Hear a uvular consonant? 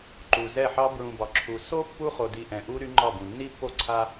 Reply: yes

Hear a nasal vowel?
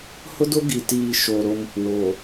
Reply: no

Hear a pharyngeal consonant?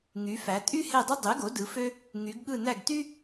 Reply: no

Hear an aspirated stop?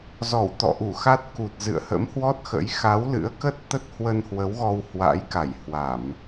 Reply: no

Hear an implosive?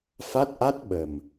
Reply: yes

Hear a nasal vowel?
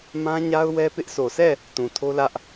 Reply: yes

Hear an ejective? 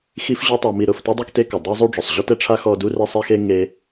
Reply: no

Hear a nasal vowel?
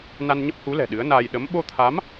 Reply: no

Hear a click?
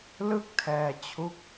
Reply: no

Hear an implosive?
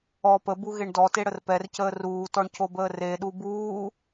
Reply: yes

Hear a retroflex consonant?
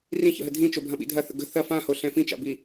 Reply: no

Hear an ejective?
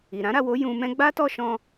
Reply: no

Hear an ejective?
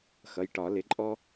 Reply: yes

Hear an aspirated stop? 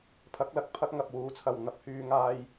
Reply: yes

